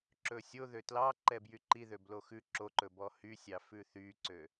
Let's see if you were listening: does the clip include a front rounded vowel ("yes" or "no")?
yes